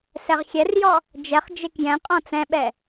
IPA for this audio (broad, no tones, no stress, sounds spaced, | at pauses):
s ɛ ʁ xʲ ɛ r j ɔ | d͡ʒ ɛ χ d͡ʒ e k j ɛ̃ qʼ ɔ̃ t͡s ɛ̃ ɓ ɛ